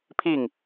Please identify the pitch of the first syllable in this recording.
falling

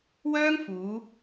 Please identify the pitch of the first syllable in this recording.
high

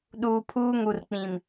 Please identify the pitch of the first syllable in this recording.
low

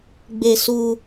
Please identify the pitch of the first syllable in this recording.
high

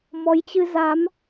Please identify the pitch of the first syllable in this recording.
rising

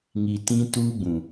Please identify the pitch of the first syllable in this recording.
low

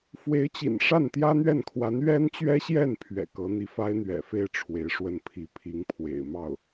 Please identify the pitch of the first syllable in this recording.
rising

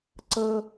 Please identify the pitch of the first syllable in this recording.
high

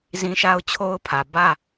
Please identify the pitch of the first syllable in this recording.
high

